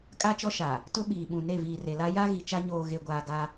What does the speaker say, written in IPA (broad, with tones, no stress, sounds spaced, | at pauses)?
kʼ a˦ t͡ʃ ɔ˦ ʃ a˨ | t ʊ˦ ɓ iː˨ ɓ ũ˨ n e˦˨ v iː˨ r e˨ l a˦ j a˦ ɣ i˨ t͡ʃ a˦ ɲ oː˨ ɣ e˨ ɡʷ aː˨ ɡ a˦